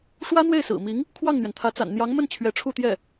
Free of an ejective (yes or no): yes